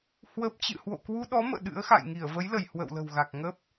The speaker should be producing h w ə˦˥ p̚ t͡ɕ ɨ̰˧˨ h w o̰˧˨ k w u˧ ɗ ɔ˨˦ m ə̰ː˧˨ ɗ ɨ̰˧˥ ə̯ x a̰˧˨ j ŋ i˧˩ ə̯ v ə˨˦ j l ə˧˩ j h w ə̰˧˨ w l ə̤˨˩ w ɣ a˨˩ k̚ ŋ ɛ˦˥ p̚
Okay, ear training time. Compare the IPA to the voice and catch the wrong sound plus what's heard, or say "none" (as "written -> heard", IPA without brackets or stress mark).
ɛ˦˥ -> ə˦˥